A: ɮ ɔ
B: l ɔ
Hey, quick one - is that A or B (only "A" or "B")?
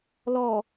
B